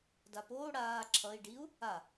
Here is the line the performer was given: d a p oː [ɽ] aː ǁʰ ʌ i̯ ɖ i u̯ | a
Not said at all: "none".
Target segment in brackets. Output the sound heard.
ɽ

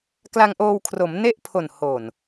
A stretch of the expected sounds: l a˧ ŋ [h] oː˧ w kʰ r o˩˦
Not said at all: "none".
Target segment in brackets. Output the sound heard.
ʔ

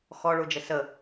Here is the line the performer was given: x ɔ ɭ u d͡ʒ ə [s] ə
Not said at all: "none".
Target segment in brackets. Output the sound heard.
s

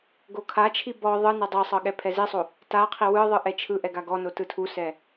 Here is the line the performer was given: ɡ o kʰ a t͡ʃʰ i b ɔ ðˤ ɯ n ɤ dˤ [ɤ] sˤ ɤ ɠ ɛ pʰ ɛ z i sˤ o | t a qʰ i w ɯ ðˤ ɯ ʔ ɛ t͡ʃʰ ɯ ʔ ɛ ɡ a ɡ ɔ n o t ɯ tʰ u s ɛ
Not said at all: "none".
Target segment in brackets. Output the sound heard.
ɤ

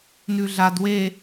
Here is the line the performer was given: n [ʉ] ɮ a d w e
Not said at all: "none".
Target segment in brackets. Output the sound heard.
ʉ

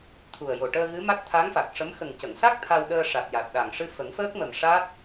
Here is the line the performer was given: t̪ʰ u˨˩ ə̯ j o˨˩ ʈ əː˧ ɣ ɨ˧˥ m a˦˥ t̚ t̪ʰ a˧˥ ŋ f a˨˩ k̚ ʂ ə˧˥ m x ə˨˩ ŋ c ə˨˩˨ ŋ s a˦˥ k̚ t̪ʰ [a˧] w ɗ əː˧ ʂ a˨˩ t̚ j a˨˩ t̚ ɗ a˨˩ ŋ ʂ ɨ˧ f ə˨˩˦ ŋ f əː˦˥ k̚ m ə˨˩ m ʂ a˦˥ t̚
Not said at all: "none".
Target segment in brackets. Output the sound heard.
a˧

